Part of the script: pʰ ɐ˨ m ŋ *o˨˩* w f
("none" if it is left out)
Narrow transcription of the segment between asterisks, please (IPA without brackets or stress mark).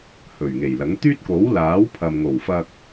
o˨˩